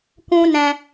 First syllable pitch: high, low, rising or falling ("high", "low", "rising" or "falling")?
high